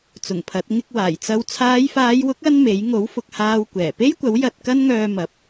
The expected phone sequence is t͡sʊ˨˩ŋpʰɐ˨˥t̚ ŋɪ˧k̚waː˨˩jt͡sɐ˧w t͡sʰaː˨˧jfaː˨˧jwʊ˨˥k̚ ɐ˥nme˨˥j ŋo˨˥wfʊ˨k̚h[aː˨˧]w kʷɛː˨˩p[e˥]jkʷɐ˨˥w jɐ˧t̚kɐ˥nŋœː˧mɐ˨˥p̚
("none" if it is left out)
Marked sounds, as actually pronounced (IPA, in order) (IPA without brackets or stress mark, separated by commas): aː˧, e˥